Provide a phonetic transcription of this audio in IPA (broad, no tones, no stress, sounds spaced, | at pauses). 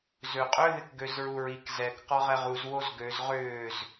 z ø qʼ ø ð ɪ k ɡ ø z ɹ u ɹ i k z ɛ k q ɔ ʁ ɛ ʁ u z w o z ɡ ø z ʁ ʏː z